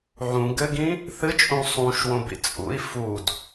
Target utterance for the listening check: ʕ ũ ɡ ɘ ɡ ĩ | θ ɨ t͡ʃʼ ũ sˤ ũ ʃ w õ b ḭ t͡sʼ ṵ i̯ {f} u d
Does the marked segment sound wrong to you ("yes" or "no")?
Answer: no